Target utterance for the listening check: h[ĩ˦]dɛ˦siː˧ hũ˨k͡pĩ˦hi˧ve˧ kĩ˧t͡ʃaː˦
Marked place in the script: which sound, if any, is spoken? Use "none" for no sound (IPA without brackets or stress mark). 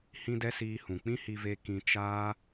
ĩ˦